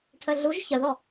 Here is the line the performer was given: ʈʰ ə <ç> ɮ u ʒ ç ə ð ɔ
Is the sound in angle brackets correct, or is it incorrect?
incorrect